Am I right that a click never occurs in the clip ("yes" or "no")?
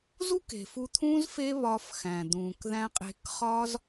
yes